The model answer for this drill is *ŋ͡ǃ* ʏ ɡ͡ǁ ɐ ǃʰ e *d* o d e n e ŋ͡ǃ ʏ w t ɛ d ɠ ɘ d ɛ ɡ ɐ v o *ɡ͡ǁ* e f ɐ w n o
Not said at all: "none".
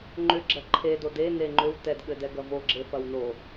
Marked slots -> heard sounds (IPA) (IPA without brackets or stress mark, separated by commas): ŋ͡ǃ, d, ɡ͡ǁ